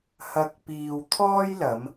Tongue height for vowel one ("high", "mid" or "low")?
low